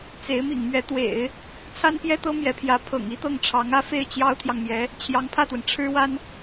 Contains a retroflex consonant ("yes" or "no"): yes